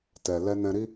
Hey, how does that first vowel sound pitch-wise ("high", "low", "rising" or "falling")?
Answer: low